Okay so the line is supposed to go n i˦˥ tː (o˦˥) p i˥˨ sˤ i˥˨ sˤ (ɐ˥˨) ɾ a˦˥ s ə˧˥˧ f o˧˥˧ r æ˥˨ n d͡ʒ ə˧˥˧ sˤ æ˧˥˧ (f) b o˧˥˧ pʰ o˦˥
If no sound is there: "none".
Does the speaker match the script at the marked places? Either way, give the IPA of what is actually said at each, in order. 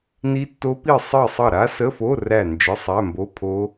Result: o˦˥, ɐ˥˨, m

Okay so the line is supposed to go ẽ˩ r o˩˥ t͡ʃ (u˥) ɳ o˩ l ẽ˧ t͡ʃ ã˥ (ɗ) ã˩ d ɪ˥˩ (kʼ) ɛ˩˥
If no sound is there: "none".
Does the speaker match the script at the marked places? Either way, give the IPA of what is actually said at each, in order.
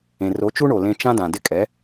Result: u˥, d, kʼ

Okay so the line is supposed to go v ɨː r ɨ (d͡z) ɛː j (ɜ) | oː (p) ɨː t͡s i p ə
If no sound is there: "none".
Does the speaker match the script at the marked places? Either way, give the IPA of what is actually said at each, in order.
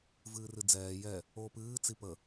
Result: d͡z, ɛ, p

